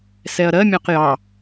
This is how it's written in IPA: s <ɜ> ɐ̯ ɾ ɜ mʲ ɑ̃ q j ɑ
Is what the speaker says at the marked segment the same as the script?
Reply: no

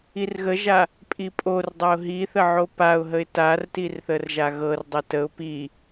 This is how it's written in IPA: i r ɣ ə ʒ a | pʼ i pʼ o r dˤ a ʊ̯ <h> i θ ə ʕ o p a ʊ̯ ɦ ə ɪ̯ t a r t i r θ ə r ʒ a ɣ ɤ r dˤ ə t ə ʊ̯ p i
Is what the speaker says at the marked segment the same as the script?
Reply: no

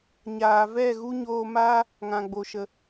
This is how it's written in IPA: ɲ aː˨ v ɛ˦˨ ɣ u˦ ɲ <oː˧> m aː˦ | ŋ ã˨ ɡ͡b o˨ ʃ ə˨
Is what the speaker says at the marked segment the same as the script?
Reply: yes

